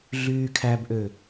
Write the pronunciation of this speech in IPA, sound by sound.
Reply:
ɮ yː kʰ æ b ʔ ø

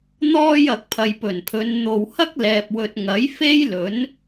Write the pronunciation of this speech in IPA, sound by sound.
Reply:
n̪ ɔː˧ j ɐ˨ k̚ pʰ ɐ˨ j p ɵ˨˩ n pʰ ɵ˨˧ n n̪ o˨ w h ɐ˥ k̚ l ɛː˨ p̚ w ɵ˨ t̚ ŋ ɐ˨˥ j f e˥ j l ɵ˨˥ n

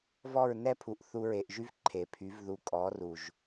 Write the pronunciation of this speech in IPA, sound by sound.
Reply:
v ɔ˦˨ ɹ n ɛ˦ pʰ u˨ ʔ θ u˧ ɹ e˨ ʔ ʒ y˦ v ǃʰ e˨ pʰ y˨˦ v ð u˧ kʼ ɔ˨˦ r u˨ ʒ

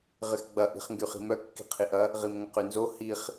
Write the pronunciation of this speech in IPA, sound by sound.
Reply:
ʁ ɪ x ɡ͡b ɐ ʔ i̤ χ ŋ ɡ y χ i̤ m œ kː i̤ qʰ i ʔ ɐ | ʁ i m ŋ ɐ q y n z o h i χ

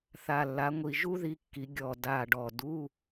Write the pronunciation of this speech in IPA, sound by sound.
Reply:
θ a˨˩ lː a˩˧ ŋʷ i˨˩ ʒ u˥ ð i˧ kː i˩˧ ɡʲ ɔ˨˩ d a˨˩ ɖ ɔ˨˩ d u˧˥˧

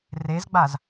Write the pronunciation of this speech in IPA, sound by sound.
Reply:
r e z ɡ͡b a z

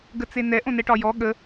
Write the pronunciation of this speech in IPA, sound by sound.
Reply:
ɡ ə t͡s e n ɛ ʔ õ n ɛ ʈ ɒ j ɔ ɠ ə

